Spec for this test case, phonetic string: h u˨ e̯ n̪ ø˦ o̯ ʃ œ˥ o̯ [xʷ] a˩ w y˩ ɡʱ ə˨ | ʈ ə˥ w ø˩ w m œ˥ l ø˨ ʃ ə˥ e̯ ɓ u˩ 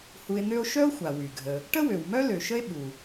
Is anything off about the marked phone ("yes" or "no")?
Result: no